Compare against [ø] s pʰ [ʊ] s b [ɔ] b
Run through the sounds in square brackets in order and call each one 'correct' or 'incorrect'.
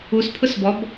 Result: incorrect, correct, correct

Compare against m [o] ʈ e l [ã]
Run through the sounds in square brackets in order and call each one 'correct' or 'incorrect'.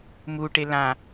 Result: incorrect, correct

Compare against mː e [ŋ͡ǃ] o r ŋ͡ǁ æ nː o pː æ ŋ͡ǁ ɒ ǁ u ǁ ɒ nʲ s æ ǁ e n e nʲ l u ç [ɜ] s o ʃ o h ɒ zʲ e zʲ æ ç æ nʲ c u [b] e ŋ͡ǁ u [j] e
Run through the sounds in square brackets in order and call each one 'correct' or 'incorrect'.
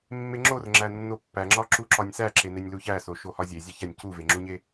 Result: incorrect, incorrect, incorrect, incorrect

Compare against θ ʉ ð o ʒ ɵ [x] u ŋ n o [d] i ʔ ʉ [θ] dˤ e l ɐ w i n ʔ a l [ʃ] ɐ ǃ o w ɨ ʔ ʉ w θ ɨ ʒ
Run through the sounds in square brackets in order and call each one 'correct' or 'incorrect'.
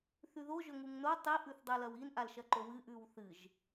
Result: incorrect, incorrect, correct, correct

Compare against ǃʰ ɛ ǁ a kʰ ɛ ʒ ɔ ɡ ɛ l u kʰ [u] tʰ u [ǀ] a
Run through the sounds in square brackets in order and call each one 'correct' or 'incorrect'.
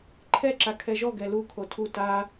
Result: incorrect, incorrect

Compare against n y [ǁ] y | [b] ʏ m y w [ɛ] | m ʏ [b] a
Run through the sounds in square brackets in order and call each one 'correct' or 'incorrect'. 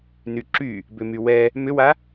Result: correct, correct, correct, incorrect

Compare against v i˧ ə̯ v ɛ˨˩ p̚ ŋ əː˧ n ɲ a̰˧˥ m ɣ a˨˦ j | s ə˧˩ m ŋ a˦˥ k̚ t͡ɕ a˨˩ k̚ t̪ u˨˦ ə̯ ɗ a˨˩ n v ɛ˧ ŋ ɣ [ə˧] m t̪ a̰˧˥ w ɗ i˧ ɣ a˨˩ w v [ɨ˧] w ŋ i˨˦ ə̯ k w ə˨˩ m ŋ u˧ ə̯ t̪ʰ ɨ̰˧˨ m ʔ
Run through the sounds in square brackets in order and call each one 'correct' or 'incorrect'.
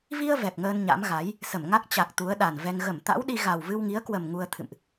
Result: incorrect, correct

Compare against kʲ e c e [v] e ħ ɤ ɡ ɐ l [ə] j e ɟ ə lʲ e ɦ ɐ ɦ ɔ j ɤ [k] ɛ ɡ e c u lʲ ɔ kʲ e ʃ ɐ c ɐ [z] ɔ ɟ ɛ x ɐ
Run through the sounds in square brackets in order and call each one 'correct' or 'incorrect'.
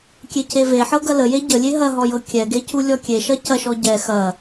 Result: correct, correct, incorrect, incorrect

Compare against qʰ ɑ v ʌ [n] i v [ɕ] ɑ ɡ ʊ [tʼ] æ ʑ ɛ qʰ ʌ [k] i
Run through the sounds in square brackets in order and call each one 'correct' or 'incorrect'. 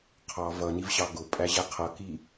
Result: correct, correct, incorrect, correct

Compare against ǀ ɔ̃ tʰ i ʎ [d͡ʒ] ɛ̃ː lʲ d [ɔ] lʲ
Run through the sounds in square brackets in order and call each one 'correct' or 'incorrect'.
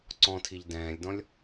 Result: incorrect, incorrect

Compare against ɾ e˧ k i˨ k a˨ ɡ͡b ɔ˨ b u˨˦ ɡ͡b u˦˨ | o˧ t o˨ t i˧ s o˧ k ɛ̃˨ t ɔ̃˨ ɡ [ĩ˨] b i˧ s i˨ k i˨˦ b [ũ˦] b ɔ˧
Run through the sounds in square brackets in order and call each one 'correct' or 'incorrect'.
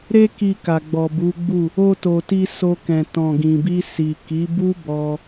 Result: correct, incorrect

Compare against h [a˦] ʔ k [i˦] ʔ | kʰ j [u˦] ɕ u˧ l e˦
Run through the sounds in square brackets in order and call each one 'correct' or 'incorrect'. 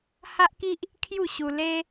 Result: correct, correct, incorrect

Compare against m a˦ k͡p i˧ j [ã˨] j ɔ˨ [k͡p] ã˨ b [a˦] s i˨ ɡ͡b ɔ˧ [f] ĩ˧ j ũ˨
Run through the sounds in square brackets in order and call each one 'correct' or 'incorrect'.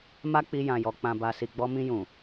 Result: correct, correct, incorrect, incorrect

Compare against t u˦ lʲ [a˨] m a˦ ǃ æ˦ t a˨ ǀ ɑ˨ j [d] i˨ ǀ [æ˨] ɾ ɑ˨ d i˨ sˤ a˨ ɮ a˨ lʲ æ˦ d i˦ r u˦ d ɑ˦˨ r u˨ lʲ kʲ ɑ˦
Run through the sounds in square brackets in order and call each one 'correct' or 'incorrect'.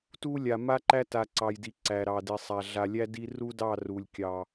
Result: correct, correct, correct

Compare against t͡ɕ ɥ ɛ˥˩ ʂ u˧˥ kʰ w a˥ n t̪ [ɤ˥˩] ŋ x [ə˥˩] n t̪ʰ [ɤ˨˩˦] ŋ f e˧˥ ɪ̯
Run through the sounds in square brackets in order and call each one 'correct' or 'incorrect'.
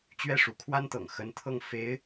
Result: incorrect, incorrect, incorrect

